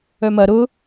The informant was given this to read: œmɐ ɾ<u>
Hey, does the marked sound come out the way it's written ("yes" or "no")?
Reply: no